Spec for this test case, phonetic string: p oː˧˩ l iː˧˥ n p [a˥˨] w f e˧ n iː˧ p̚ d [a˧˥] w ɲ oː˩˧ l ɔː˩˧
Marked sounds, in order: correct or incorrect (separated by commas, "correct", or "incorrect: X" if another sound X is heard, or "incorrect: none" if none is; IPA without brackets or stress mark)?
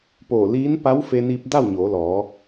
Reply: incorrect: a˧˥, incorrect: a˥˨